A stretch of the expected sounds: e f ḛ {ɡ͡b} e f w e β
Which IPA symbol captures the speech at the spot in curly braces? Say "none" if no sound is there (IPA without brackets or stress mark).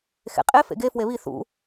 ɡ